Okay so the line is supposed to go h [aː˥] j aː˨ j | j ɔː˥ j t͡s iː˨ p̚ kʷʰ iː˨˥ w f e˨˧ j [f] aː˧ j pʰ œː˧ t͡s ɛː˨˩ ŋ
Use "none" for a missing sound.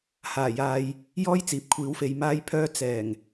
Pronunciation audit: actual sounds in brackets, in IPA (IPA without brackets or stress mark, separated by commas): aː˨˩, m